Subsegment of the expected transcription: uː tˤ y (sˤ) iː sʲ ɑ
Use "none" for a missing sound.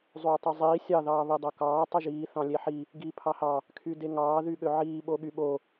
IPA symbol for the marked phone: zˤ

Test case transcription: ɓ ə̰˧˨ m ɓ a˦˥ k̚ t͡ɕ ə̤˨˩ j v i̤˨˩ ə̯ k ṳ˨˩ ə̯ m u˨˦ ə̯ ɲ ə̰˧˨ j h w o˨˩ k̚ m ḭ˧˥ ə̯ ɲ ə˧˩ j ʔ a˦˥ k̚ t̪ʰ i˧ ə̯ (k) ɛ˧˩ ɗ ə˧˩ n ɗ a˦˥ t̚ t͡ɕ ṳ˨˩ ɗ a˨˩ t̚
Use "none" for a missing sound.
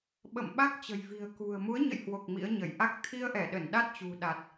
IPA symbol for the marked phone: ʔ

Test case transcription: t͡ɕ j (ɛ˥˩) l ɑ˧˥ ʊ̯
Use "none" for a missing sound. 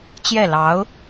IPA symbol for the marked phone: ɛ˥˩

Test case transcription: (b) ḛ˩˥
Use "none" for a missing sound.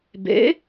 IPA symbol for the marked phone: b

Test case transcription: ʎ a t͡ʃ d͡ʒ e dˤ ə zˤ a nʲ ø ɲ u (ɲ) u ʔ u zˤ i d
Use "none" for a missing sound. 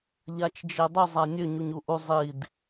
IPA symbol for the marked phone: ɲ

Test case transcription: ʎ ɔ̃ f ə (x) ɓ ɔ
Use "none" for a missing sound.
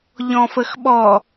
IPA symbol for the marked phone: x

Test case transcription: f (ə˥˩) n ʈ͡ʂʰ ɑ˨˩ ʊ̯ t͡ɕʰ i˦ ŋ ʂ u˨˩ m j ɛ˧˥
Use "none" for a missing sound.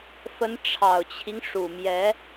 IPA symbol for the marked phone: ə˧˥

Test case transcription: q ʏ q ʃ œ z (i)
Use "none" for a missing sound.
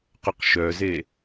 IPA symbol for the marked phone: e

